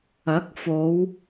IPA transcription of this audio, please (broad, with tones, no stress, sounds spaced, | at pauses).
ɐ˨˥ k̚ f o˨˧ w